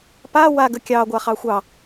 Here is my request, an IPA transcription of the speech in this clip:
pa wa ɡəkʲɑ ɡʷaχɑxʷɑ

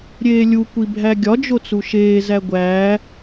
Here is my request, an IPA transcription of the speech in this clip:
ɾʲeːlʲu kʷibʱæɡʲɒ d͡ʒot͡suʃeː zæɡʷæː

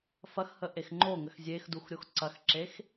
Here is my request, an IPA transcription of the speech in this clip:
fɐxhəʔex ŋ͡ǃoŋəx zʲexduxɾʲox ǀɐxǁex

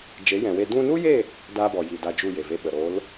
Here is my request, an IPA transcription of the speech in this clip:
d͡ʒe˨˦jɛ̃˨we˧ dũ˧nu˦je˦˨ | daː˦bɔ˨ji˨ da˧ d͡ʒu˦˨je˨ve˧ɓə˨ ɾo˨˦l

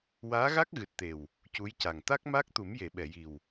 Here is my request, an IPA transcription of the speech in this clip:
waː˧˥ɣa˦˥k̚ɣɨ˨˩t̚t̪e˨˩w | cu˧˥jca˨˩ŋ t̪a˦˥k̚maː˦˥k̚t̪u˨˩˦mje˨˩˨ ɓɛ˨˩˨ji˨˩w

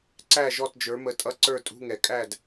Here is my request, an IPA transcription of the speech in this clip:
ǀæ˥˨ʒɔ˥˨td͡ʒə˞˨˥ mə˨˥tʼʌ˧˥˧ ǀə˞˥˨tʼṳ˧˥˧ŋɛ˨kʼæ˥˨d

